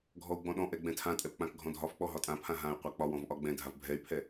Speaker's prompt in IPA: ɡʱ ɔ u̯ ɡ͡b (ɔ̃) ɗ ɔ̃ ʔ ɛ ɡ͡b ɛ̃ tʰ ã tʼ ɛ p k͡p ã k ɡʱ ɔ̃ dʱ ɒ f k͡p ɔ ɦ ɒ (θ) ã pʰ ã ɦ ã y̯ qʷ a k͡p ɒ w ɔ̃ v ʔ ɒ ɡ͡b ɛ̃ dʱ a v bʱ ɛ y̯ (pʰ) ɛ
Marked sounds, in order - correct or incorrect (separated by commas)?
correct, incorrect, correct